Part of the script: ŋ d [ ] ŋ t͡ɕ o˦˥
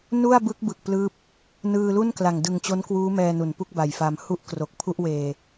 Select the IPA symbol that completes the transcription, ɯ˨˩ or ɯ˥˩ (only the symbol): ɯ˨˩